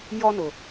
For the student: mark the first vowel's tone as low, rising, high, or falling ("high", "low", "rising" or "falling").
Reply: high